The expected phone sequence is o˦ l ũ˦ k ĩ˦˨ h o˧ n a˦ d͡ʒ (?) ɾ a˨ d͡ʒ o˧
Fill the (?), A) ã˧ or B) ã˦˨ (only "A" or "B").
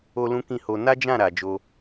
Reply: B